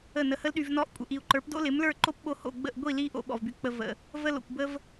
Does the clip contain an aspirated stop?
no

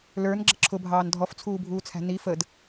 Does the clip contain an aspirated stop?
yes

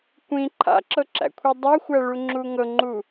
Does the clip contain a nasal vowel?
yes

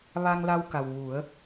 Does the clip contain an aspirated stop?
no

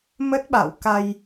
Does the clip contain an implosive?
yes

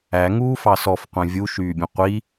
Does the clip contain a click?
no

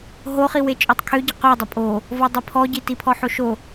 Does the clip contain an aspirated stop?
yes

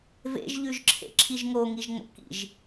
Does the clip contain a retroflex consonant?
no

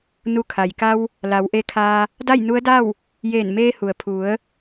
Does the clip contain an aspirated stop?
yes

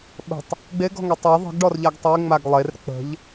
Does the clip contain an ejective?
no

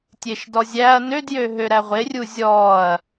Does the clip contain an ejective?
no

